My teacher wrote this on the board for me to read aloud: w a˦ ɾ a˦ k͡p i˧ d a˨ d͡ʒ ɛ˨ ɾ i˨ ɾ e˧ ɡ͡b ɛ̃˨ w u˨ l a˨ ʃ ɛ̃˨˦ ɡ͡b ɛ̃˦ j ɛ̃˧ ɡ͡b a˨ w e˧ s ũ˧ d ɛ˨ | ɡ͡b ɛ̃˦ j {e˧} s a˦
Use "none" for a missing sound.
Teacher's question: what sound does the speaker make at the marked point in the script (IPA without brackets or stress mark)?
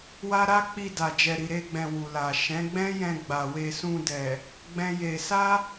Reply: e˧